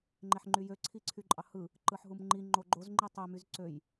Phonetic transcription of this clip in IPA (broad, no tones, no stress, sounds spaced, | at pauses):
ŋ͡ǃ e ħ ŋ͡ǃ y j ø ǀʰ i ǀʰ y ǃʼ ɑ h ɯ | ǃ ɯ ħ ɦ u m ŋ͡ǃ i ŋ͡ǃ o ɡ͡ǃ o z ŋ͡ǃ i tˤ ø m y z ǀ ø j